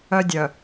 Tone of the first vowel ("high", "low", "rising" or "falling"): high